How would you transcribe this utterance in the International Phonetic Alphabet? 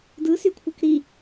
d ɯ s y kʷʰ ɯ k ɾ i

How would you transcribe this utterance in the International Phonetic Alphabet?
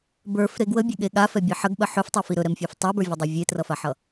b ə˞ f ɾ e ɡ w ə bʲ ɵ ɠ e ɠ a f ɛ bʲ ɛ ħ ə ɡ ɓ ə ħ ɵ f tˤ ɛ f i ɾ ɵ ɾ ɛ m fʲ e f tˤ ə˞ b ə˞ vʲ ʌ dˤ o vʲ e t r ʌ f a ħ ʌ

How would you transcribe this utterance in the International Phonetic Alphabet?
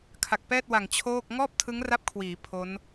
kʰ a˨˩ k̚ p ɛː˥˩ t̚ w a˨˩ ŋ t͡ɕʰ oː˥˩ k̚ ŋ ɔː˥˩ p̚ tʰ ɯ˦˥ ŋ r a˦˥ p̚ kʰ w iː˩˦ pʰ o˦˥ n

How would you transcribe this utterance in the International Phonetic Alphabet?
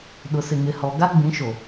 ɗ ʊ˨ s ɪ˨ ŋ ɪ˨ h ɔ˨ ɡ a˦ ɡ͡b ĩ˨˦ ʃ o˨

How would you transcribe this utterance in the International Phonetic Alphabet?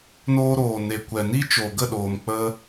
n oː˧ ɾ oː˨ n e˨ kʷ ɛ˨ n i˦ t͡ʃ oː˨ ɡ ə˦˨ ɗ oː˨ m k͡p ə˦

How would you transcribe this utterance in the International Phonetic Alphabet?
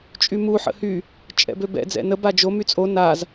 t͡ʃʼ y m u ħ ə̰ h y | t͡ʃʼ ɛ̰ b ø b ɛ̰ d͡z ɛ̰ n ə b a d͡ʒ o m y t͡sʼ o n a z

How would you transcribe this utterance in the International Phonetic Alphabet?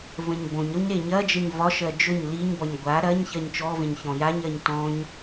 v ə̃ ɲ b õ ɲ ɾ o ɲ ɾ e ɲ ɐ d͡ʒ ə ɲ v ɒ ʃ ɜ d͡ʒ ɵ ɲ l i ɲ b ɒ ɲ ɡʷ a ɾ ɐ ɲ ç ɜ ɲ t͡ʃ ɔ v ẽ ɲ ç ɔ̃ j a ɲ ɜ ɲ t ɔ̃ ɲ

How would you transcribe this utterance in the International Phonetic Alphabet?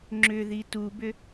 ŋ͡ǁ ʏ ð i t u b ʏ

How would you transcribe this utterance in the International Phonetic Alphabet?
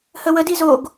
h ə w ə d i z o ɡ

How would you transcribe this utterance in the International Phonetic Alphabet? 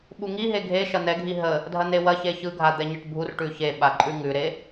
ɓ u ŋ i ɦ e ɡʱ e ʃ ɐ n̪ ɛ ɡʱ i ɦ ə | dʱ ɐ n̪ e w ɐ ç e ç ɯ ɡʱ a d̪ ɛ ɲ ɐ ʈ bʱ u r ʈ ʉ ç e ɓ a ǃʼ ʉ ŋ ʉ ɾ e

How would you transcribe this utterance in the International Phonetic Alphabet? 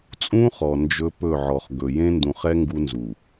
t͡sʼ ũ˦ χ ɔ˨ n d͡ʒ ɵ˦ p ɵ˦˨ ʕ ɔ˨ χ ɡ ɵ˨ j ẽ˦ n d ũ˨ χ ɛ˦ ŋ ɡ u˦ n z u˨

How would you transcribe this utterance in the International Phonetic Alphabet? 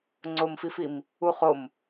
ŋ͡ǀ o m f i f i m | u χ o m

